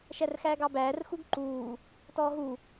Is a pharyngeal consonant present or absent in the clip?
absent